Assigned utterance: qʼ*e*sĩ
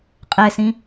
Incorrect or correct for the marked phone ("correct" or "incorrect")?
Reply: correct